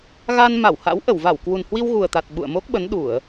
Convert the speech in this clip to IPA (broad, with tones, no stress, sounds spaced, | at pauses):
ɣ a˧ n m a˧˩ w h a̰˧˥ w ʔ ə˧˩ w v a˧˩ w k w u˨˩ n h w i˧ w ɣ u˨˩ ə̯ t̪ a˨˩ t̚ ɓ ṵ˧˨ ə̯ m o˦˥ k̚ ɓ ə˨˦ n ɗ u˧˩˨ ə̯